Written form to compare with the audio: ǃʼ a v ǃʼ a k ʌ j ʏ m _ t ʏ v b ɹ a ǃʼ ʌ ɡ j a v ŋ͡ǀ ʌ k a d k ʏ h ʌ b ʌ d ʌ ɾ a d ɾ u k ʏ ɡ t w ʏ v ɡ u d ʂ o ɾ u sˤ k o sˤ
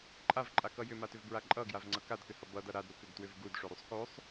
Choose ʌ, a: a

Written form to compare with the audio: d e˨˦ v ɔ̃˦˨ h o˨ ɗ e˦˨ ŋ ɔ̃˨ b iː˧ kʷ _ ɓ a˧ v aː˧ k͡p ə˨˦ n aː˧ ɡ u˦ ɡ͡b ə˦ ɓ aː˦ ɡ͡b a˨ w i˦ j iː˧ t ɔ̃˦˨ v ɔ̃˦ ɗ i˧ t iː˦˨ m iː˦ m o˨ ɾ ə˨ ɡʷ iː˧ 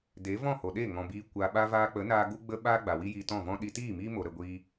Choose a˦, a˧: a˧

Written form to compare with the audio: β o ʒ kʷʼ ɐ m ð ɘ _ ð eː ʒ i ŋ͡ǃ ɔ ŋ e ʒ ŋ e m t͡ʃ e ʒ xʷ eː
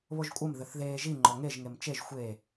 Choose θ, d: θ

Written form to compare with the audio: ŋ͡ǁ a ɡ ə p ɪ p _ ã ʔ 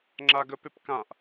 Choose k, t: k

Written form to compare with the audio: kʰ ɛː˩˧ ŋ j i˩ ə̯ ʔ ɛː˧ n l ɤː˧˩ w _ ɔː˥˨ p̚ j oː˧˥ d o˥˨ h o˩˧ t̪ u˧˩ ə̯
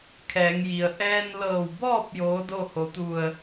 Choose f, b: b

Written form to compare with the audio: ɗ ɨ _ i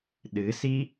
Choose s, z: s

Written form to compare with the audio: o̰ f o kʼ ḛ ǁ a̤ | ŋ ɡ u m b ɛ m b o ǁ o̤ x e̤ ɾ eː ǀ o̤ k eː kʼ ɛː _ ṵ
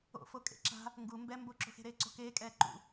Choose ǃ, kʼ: ǃ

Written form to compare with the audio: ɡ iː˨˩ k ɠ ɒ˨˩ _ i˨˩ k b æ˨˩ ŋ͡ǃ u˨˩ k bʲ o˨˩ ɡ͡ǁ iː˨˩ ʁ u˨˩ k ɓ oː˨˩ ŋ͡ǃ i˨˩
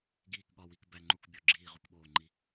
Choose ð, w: w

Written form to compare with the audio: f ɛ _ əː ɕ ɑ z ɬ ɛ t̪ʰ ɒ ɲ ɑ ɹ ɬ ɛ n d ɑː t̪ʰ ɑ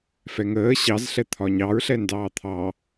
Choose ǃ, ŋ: ŋ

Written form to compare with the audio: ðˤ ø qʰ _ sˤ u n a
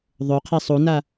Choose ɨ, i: i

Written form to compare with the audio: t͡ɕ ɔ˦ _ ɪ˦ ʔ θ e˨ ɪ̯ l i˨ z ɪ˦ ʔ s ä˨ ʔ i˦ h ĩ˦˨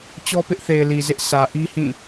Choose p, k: p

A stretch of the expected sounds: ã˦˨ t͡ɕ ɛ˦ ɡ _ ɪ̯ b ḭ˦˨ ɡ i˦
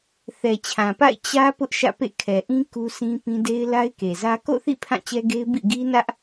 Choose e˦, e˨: e˦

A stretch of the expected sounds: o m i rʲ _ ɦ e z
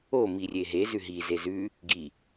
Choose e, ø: e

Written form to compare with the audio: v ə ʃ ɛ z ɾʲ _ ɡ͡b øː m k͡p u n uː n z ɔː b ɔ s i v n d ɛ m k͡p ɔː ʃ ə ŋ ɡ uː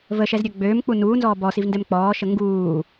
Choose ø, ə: ø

